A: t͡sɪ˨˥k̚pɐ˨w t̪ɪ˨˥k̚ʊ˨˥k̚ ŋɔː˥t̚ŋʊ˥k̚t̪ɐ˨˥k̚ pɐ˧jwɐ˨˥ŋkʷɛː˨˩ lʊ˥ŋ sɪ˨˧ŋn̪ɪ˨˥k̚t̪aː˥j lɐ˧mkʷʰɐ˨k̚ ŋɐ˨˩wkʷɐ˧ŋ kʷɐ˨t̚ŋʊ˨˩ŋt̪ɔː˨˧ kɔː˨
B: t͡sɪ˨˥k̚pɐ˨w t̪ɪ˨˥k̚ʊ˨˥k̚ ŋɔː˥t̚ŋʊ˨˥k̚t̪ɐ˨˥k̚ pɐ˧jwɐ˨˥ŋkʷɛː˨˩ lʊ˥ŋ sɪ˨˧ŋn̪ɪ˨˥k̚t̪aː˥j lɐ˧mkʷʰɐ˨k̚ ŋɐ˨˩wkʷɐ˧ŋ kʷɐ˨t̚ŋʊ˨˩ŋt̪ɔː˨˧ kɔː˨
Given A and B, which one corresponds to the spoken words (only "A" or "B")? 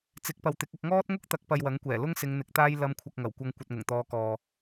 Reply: A